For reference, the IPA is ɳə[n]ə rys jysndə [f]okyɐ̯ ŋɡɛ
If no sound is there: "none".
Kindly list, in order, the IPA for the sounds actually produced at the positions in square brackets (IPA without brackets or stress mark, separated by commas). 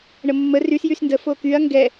mː, f